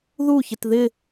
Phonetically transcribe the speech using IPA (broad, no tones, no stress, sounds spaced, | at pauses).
ð u ç ɪ t ð ɪ